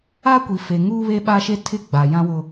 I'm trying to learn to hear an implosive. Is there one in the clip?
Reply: yes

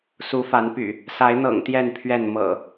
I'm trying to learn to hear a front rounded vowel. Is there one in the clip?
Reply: yes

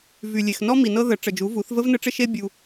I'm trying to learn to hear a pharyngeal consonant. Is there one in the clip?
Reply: no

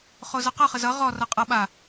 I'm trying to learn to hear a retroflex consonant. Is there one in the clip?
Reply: no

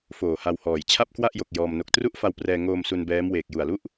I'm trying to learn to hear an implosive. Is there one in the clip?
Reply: no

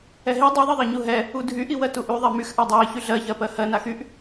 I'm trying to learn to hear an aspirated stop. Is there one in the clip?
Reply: no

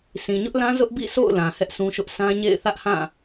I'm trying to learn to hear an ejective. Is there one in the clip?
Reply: no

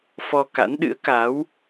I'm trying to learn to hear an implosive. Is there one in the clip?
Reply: yes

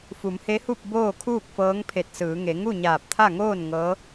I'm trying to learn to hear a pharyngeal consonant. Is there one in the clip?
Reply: no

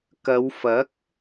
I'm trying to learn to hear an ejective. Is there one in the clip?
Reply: no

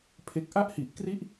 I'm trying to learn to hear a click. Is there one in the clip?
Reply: no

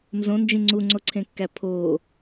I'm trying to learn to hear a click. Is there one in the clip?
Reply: yes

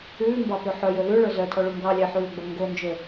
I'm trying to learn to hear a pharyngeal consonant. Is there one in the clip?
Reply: yes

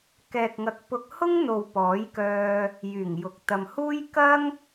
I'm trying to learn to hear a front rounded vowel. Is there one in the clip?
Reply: yes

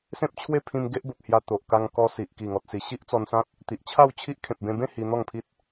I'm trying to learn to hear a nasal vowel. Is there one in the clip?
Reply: yes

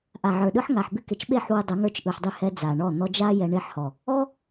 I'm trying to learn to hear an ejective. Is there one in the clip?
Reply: no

